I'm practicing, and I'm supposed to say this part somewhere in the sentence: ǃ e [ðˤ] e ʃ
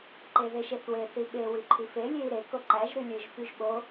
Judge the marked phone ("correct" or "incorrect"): incorrect